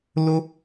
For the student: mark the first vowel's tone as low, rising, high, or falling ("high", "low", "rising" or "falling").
high